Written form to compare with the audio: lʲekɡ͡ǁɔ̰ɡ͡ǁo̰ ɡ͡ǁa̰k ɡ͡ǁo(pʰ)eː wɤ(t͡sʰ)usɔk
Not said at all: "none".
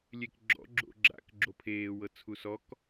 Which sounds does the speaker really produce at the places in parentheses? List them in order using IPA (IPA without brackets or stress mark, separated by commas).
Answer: pʰ, t͡sʰ